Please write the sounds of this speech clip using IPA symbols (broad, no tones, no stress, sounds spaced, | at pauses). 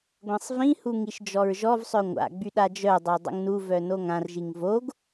ɡʷ ɛ̃ sˤ v ĩ h u ŋ i ʃ d͡ʒ ɔ ɹ ʒ ɔ v sˤ œ ŋʷ a̰ ɡ͡b y ɗ a d͡ʒ œ dˤ o dˤ ə̰ ŋ n u v œ n o ŋ ã r ʒ i ŋ v o ɡ